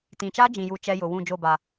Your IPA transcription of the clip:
t ĩ˨ t͡ʃ a˦ d͡ʒ ĩ˨ j u˨ t͡ʃ ɛ˦ j ʊ˨ w ũ˦˨ d͡ʒ o˦˨ b a˨

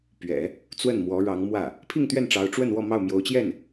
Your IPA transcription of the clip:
p ɥ ɛ̰˨˩˦ | t͡s w ə˥˩ n m w ɔ˧˥ ɻ ɑ˧˥ ŋ m w ä˥˩ | pʰ i˥˧ ŋ t̪ ɥ ɛ˥˩ n ʈ͡ʂ ɑ˧˥ ʊ̯ ʈ͡ʂ w ə˥˧ n w ɔ˥˧ m ɑ˥˩ ʊ̯ m j o˧˥ ʊ̯ t͡ɕ j ɛ˥˩ n

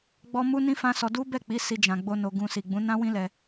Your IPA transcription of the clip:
ɡ͡b ɔ˦ m u˦ n ĩ˦ f ã˦ s ɔ˧ d u˦ b ɛ˦˨ k͡p i˨˦ s i˧ d͡ʒ ã˨ ɡ͡b o˧ n o˧ ɡ ũ˧ s i˨ ɡ͡b ũ˨˦ n ã˦ w ĩ˦ l ɛ˧

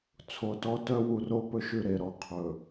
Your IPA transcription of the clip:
t͡sʰ o˨ t ɔ˦ t œ˦ w u˨ r o˦ p ɵ˦ ʃ ʉ˦˨ ɾ e˦˨ ɾ ɔ˦˨ qʰ ɵ˨

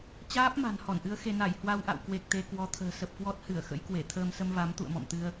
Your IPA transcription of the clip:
t͡ɕ aː˦˥ p̚ m a̤˨˩ n h ɔ˧˩ n ʔ ɨ˨˦ ə̯ x e˧ n a˧˩ j h w a˧ w ʔ a̰˧˨ w k w e˨˩ k̚ t̪ e˧ k w ɔ˧ t̪ʰ ə̤ː˨˩ s ə˨˩ p̚ k w ɔ˦˥ t̚ h ɨ˧˩ ə̯ x ə̰˧˥ j k w e˧˩ t̪ʰ əː˧ m s ə˧ m v a˨˦ m t̪ ṵ˧˨ ə̯ m ɔ̰˧˨ m t̪ ɨ˧ ə̯

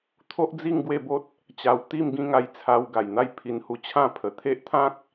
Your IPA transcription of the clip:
t̪ʰ o˦ ʔ d͡z i˥˧ ŋ ɡ w e˥˧ b o˦ t̚ | t͡ɕ a˧ w t̪ i˥˧ m ɡ ĩ˥˧ ŋ a˧ j t͡sʰ a˧ w ɡ a˨˩ j n̪ a˥˧ j pʰ i˧ n h u˧ t͡ɕʰ ã˥˧ pʰ ə˨˩ t̪ʰ e˦ ʔ t̪ʰ ã˦ k̚

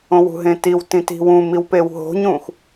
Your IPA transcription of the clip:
õ w ṳ ɦ ẽ t i w t ĩ t i̤ w ũ m i w p e w ɦ o̤ ɲ ũ x

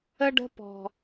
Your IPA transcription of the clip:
ə˦ ɖ ə̤˦ p ɔ̤˦

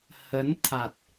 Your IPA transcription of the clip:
h ə˨˦ n t̪ʰ a˨˩ t̚

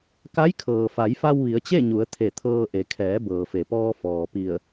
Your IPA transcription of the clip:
k a˧˥ j kʰ ɤː˩ f a˩˧ j f a˧ w ʋ i˩˧ ə̯ t͡ɕ e˥˨ ɲ u˩˧ ə̯ t̪ʰ e˧˩ t̪ʰ ɤː˧ ʔ e˩˧ kʰ ɛː˩˧ b ɤː˩ f e˩ p ɔː˧ f ɔː˩ p i˧˩ ə̯

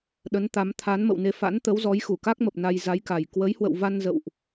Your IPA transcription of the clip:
ɗ ə˨˦ n t̪ a˨˦ m t̪ʰ a˨˦ n m ə̰˧˨ w n e˧ f a̰˧˥ n t̪ ə˨˦ w z ɔ˨˦ j x u˧˩ k a˦˥ k̚ m ə˨˩ p̚ n a˧ j z a˨˦ j k a˨˩ j k w ə˨˦ j h w ə̰˧˨ w v a˧ n z ə̰˧˨ w ʔ

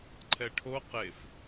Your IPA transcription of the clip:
ǃʰ ɛ ʈʰ o q e f

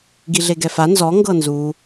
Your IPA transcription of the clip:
ɡ i ɮ e ɡ ɛ f a n z ɔ ŋ ɡ ɤ n z u

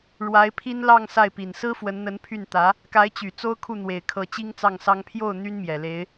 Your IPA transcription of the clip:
ɻ w a˧˥ ɪ̯ pʰ i˥ n l ɑ˥˧ ŋ s a˥˩ ɪ̯ p i˨˩ n s ɹ̩˥ f w ə˧˥ n n̪ ə˧˥ n pʰ y˥˩ n t̪ ä˧˥ | k a˧˥ ɪ̯ t͡ɕ y˨˩ t͡s o˥ ʊ̯ kʰ u˥˩ n̪ w e˨˩ ɪ̯ kʰ ɤ˧˥ t͡ɕ i˥ ŋ t͡s ɑ˥˩ ŋ s ɑ˥ ŋ pʰ j o˥˩ ʊ̯ n̪ y˥ n m j ɛ˨˩ l e˧˥ ɪ̯

